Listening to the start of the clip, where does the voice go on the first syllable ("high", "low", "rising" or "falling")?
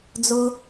low